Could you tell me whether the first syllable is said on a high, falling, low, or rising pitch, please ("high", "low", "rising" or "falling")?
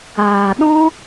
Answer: low